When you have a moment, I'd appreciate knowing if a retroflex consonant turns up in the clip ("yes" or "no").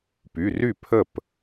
no